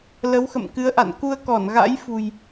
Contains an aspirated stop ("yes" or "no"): no